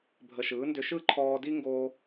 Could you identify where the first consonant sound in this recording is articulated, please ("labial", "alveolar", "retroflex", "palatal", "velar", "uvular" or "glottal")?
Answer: labial